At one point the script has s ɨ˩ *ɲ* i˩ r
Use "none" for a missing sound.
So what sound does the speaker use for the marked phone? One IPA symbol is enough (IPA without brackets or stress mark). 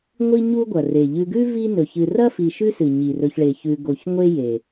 ɲ